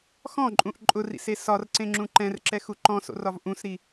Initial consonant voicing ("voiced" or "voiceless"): voiceless